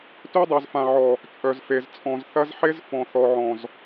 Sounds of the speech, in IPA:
tø˦dˤœ˨zfã˨ʕɔ˨ | t͡ʃʼœ˨zfe˨z t͡sʼɔ̃˨z θɐ˦zħe˦z fɔ̃˨θɔ˨ʕɔ̃˨z

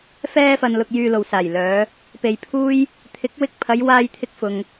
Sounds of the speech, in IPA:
fɛː˧fɐ˨n lʊ˨k̚jyː˨lo˨˩w saː˨˩jlœː˨˧ | pe˨j pʰuː˥j | t̪ʰɪ˨˥k̚ wɪ˧k̚pʰɐ˨˧j waː˧jt̪ʰɪ˧k̚ fʊ˧ŋ

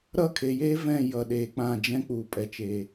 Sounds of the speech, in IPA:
ɾʌ˦˨kʰe˨jeː˦ vɛ̃˦˨jʌ˨ ɗeː˨k͡pã˦˨d͡ʒɛ̃˦ k͡puː˨pʼɛ˨t͡ʃe˨

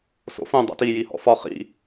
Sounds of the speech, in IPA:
so̰fũ dˤa̰ti jihɔ̰fɒ χḭ

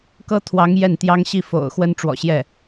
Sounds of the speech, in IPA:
kɤ˥t̪ʰwɑ˧˥ŋ jɛ˥˩nt̪jɑ˥ŋ ɕi˥˩fo̰˨˩ʊ̯ xwə˥nʈ͡ʂwɔ̰˨˩ɕjɛ˥˩

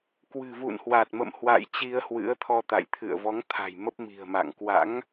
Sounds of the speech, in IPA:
kwɨ̤˨˩vṵ˧˨nhwa˨˩t̚mə̰˧˨m hwa̰˧˨j t͡ɕi˧ə̯hwɨ̰˧˥ə̯t̪ʰɔ˧t̪a̰˧˨j t̪ʰɨ̰˧˨ə̯vɔ˨˦ŋt̪ʰa̤˨˩j mə˦˥p̚mi̤˨˩ə̯ma̰˧˨ŋ kwa̰˧˥ŋ

